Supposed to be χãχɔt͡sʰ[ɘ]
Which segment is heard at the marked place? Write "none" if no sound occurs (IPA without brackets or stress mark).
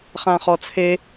e